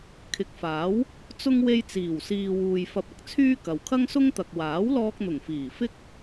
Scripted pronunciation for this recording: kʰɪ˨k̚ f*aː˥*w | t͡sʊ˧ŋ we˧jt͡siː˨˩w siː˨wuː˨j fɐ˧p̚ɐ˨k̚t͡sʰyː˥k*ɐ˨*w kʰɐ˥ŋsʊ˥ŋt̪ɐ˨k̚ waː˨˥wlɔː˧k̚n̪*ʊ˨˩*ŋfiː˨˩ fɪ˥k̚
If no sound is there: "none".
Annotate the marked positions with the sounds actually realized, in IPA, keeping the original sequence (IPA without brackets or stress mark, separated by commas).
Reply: aː˨˥, ɐ˨, ʊ˨˩